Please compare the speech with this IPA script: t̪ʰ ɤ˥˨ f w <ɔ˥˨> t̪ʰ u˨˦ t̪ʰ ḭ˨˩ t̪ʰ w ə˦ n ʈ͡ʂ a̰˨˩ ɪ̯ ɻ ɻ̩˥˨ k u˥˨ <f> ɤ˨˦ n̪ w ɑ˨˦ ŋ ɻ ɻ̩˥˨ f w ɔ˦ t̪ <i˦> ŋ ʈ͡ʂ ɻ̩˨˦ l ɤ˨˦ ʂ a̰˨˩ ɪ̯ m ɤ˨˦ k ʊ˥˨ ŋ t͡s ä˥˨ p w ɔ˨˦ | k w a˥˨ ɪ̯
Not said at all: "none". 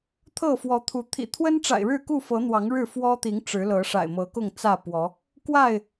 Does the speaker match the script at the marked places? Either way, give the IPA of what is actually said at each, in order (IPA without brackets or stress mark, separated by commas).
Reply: ɔ˨˦, f, i˨˦